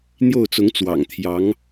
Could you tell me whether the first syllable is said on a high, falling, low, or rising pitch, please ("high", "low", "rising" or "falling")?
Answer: falling